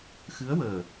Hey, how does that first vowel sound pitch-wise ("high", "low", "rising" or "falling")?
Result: rising